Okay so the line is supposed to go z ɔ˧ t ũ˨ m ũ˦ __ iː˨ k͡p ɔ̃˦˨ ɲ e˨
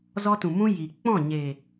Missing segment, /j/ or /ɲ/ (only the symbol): j